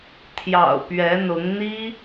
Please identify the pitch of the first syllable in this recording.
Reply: low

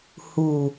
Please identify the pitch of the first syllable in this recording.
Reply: low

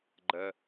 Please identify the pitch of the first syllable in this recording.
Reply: low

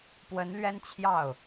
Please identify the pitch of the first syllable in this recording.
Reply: rising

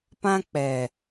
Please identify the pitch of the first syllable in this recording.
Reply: high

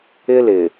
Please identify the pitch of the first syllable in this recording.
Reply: high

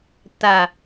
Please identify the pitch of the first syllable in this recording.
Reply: low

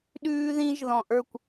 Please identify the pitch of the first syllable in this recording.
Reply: high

